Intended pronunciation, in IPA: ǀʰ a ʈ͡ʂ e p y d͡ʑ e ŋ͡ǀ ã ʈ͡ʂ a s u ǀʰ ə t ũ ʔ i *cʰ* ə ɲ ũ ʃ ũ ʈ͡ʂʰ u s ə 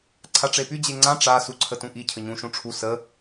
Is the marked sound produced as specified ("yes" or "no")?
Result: yes